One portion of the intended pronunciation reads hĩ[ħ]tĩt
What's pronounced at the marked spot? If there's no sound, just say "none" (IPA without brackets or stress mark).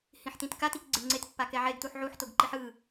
ħ